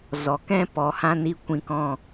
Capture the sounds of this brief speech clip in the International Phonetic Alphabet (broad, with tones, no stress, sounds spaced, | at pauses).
z ɔ˨ k ɛ̃˦ p ɔ˨ h ã˧ n i˧ kʷ ĩ˧ k ɔ̃˦